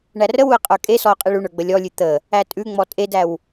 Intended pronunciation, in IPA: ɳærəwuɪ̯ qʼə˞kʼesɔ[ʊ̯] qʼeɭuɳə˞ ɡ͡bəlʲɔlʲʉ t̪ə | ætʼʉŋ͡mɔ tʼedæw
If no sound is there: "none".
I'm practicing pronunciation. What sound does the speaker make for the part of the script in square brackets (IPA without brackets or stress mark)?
ʊ̯